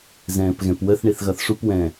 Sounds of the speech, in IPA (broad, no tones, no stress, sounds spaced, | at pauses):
z ɛ̃ː p ɣ ɛ̃ p w ə θ ɳ i θ ɣ ʌ θ ʂ u p w ɛ̃ː